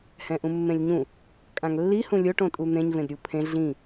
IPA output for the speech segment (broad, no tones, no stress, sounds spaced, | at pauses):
h ɛ̃ ʔ ũ mː ẽ lʲ ɲ ũ | kʼ ã ŋ lː i h ũ lʲ o ʈ õ tʼ u n̪ ẽ ɲ v ẽ d ɾʲ u pʰ ẽ ɮ ĩ